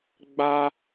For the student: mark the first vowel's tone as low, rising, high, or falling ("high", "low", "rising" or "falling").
high